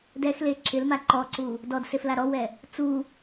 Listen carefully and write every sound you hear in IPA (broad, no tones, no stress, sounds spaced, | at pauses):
d ɛ x l e ǁ ɪ l m a ǃ ɔ ǀ u | d ɔ d s e f l a ɾ ɔ w ɛ | t͡s u